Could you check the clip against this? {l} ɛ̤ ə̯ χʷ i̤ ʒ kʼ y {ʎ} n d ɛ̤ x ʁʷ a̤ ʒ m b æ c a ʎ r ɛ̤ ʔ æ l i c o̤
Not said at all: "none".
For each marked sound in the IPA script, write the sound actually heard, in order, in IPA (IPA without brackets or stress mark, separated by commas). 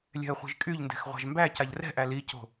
lʲ, ʎ